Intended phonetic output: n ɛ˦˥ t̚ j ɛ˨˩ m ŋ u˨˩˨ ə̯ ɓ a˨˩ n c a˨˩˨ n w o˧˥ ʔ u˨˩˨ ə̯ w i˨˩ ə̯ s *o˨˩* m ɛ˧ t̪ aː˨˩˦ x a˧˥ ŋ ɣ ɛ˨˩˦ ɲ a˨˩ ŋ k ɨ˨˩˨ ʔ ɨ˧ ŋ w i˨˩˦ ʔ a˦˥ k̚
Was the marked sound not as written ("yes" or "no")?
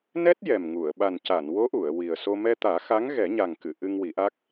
yes